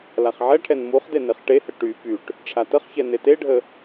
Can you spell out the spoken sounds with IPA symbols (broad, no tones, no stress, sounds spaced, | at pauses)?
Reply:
l a χ ʕ ɛ ʈʰ ɛ n m u χ d e n e χ ʈ e h ə ʈ y p y ʈ | ʈ͡ʂʰ a t ə χ ç ɛ n e t e ɖʱ ə